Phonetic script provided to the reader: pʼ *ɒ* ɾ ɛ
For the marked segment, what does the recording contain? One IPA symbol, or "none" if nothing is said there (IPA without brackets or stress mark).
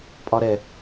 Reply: ɒ